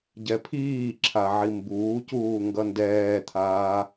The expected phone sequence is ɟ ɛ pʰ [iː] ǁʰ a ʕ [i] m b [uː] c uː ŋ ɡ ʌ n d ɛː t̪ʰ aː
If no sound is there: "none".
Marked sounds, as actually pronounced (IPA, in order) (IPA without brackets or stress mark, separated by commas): iː, i, uː